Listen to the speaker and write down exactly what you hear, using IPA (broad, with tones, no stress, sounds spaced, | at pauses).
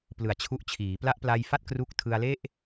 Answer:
p l ɯ˨˩ a̯ t͡ɕʰ u˦˥ ʔ t͡ɕʰ iː˩˦ p l a˦˥ ʔ p l a˧ j f a˥˩ t̚ k r u˥˩ k̚ tʰ ɯ˧ a̯ l e˥˩ ʔ